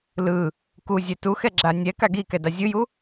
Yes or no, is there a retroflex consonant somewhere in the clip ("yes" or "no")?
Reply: no